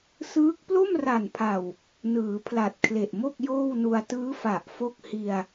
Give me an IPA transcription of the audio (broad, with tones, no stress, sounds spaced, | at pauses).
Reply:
s ɯː˦˥ k̚ p l o˥˩ m r a˨˩ n pʰ a˨˩ w | n ɯː˩˦ pʰ l a˨˩ t̚ kʰ l e˨˩ ʔ m o˥˩ k̚ j oː˥˩ w n u˧ a̯ t ɯː˦˥ f a˨˩ ʔ f o˥˩ k̚ h i˧ a̯